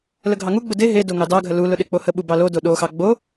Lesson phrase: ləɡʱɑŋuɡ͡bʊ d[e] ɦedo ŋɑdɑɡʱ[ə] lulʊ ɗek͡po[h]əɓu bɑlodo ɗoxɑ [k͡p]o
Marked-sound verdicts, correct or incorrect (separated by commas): correct, correct, correct, incorrect